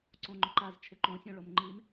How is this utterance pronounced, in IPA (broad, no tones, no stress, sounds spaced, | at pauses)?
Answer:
ǀ õ ŋ͡ǃ ʊ ǃ a z t͡ʃʰ ɪ ǃ õ sʲ õ ɭ o m ŋ͡ǃ i m